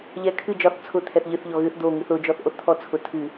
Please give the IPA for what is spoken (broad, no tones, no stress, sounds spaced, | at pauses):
ʎ ɛ kʰ ɨ d͡ʒ ɒ θ t͡sʰ ʊ t̪ʰ ɛ θ ʎ ɨ θ ʎ ɔ ɣ ɨ θ d̪ o ŋ ɨ θ ʊ d͡ʒ ɔ θ ʔ o θ t̪ʰ ɔ t͡sʰ ʊ tʰ ɨ